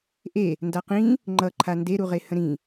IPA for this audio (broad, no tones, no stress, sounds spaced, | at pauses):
ʔ e | n d a q ĩ | ŋ͡ǃ ʌ ǃʰ a n d e ɾ u ʁ e h ə̃ ɾ ĩ